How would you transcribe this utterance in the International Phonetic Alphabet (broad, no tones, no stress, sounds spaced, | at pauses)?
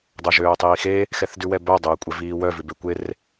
dˤ o ʒ øː tˤ iː x e | x ɛ θ d ʉ w ɛ b œ dˤ øː kʷʼ ɛ v iː w œ v ʉ b e kʷ e r